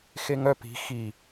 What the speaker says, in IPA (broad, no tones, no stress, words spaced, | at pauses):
xeŋœ pi̤ xi